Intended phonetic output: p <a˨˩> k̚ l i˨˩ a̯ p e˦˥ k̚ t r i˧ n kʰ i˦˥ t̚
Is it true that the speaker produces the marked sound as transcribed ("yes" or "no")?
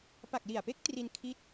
yes